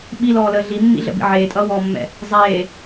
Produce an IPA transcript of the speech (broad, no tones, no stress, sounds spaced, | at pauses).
ɓ i l ɔː l əː ɮ i mː ḭ ɮ ə̰ b ḭ ʕ eː tʼ ʌː w ɔː mː ɛ̰ | zˤ eː